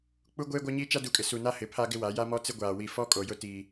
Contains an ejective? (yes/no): yes